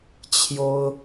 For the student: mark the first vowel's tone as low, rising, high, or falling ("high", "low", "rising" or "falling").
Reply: high